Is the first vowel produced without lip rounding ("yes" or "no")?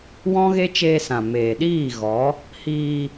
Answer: no